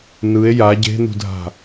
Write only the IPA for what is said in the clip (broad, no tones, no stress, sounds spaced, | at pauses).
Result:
n ɯ e̯ j a ɟ e̤ n ṳ dʱ a̤